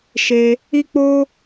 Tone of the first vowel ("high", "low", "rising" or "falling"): high